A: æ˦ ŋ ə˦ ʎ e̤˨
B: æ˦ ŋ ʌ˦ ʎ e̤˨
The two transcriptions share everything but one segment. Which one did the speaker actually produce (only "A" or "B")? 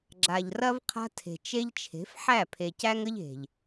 A